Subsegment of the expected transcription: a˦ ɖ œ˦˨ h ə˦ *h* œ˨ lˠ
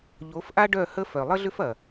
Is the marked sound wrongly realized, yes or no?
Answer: yes